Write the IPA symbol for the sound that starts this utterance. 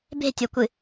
b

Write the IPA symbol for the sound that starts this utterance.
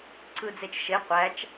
ǀ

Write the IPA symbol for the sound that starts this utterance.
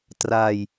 t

